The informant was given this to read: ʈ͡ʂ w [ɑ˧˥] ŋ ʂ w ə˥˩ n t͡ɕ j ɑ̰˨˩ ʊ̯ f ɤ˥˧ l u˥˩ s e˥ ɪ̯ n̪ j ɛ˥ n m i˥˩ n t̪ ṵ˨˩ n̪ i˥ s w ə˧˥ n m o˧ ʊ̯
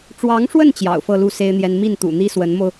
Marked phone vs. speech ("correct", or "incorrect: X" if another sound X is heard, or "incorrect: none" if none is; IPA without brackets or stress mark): correct